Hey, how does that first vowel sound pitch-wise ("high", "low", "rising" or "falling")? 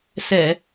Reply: low